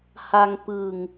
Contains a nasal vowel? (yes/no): no